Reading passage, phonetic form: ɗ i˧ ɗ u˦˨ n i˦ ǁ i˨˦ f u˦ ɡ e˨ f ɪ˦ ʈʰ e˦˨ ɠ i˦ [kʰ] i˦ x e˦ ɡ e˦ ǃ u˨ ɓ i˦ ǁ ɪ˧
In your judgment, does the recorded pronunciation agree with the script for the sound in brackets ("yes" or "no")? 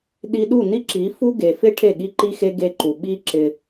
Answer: no